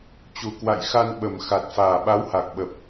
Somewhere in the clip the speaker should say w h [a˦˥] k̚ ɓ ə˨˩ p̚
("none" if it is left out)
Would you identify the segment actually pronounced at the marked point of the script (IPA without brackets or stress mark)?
a˨˩